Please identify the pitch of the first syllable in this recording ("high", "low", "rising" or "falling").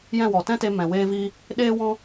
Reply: falling